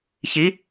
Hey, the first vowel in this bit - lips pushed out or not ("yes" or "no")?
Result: no